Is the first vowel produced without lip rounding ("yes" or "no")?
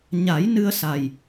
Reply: yes